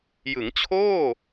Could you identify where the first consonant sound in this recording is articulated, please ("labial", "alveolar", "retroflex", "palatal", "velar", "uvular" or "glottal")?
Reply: palatal